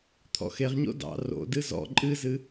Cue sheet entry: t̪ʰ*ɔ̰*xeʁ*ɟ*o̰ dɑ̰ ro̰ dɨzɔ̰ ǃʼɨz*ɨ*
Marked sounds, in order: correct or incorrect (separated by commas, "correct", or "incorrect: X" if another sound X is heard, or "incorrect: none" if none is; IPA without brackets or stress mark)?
correct, incorrect: ɲ, correct